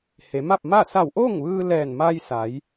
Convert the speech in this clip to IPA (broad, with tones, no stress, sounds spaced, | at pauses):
h e˩˧ m a˥˨ p̚ m a˥˨ s a˧˩ w ʔ oː˥˨ ŋ ʋ ɯː˧ l ɛː˧˩ n m a˧ j s a˩˧ j